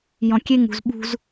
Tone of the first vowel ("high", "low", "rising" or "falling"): low